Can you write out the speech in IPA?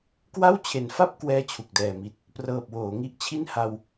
k w a˥˩ w t͡ɕʰ e˨˩ n f a˥˩ p̚ k w ɛː˥˩ t͡ɕʰ u˨˩ k̚ d ɛː˨˩ m i˨˩ t̚ | p r ɤː˨˩ p̚ w oː˩˦ ŋ i˦˥ ʔ t͡ɕʰ i˥˩ n h a˧ w

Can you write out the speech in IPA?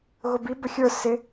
ɣ ʊ b i b ə xʲ ə˞ s ɪ

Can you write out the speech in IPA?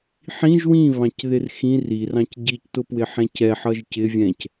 ħ ĩ ʒ w ĩ β ɑ̃ c ð ɪ r x ĩ r i r ɑ̃ c ɟ i c t ʊ p w ɪ ħ ɛ̃ c ɛ ħ ʌ ʒ c ɪ vʲ ɛ̃ c

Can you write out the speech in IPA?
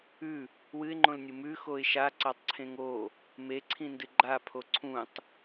ʉ | w ɨ ɪ̯ ŋ͡ǃ õ l nʲ u m ʉ x o ɪ̯ ʃ a ǀ a tˤ ǀʰ ẽ ŋ o | m e ǀʰ ĩ n d ɨ ɡ͡ǃ a pʰ o ǀʰ ũ tˤ

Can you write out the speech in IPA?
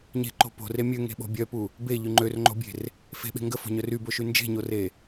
ɲ e̤ ǃ o̤ p o̤ r e mʲ ø ŋ e̤ ɓ o̤ bʲ œ p u | b e ʎ y ŋ͡ǃ ø r ŋ͡ǃ o̤ bʲ e̤ r | f e̤ ɓ e̤ ŋ ɡ ə f o̤ ɲ œ r y b o ʃ y n d͡ʒ e̤ ɲ o r e

